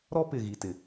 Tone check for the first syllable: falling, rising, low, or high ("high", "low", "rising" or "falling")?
high